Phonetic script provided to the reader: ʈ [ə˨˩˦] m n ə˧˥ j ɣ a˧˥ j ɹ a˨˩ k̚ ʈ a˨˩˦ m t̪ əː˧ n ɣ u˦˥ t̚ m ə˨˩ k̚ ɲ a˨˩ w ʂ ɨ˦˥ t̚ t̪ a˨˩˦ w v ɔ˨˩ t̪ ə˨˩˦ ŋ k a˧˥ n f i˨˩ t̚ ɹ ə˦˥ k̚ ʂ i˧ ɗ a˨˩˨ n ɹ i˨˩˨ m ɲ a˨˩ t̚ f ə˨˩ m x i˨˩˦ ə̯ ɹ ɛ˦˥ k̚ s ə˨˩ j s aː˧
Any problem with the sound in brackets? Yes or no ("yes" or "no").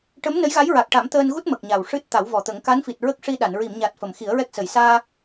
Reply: yes